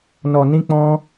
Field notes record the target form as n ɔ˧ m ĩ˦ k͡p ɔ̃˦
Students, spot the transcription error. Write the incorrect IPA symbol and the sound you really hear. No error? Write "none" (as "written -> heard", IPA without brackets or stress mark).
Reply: m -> n